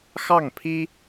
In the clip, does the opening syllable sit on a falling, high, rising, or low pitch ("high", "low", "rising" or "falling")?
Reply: falling